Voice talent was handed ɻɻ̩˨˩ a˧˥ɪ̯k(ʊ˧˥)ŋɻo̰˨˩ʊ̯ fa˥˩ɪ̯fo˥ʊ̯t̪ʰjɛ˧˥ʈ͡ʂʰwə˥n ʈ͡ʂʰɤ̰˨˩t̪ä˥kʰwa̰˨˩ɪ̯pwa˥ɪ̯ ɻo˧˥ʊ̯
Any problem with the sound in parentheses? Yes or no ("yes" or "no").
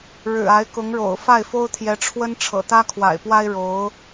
no